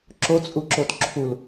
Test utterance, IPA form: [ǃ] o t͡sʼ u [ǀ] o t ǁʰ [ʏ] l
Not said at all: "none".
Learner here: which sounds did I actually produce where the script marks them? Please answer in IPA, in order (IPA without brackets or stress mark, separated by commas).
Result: ǁ, ǁ, u